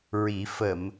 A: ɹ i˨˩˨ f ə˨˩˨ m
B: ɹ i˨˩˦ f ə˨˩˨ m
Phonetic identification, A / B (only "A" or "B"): B